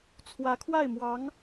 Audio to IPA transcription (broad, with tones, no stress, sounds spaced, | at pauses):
t͡sʰ w ä˧˥ kʰ w a˥˩ ɪ̯ m w ɑ˧˥ ŋ